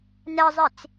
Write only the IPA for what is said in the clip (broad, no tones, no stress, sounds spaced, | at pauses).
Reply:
n ɛ zˤ i t͡s